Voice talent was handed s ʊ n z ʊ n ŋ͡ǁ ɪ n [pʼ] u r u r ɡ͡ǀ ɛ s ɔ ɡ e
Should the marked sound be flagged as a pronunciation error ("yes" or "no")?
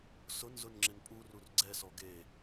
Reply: no